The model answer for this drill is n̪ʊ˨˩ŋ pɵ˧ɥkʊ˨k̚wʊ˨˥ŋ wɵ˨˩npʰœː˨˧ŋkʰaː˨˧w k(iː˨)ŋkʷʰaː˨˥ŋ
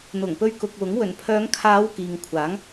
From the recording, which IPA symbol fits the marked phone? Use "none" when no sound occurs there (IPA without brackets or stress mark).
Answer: iː˨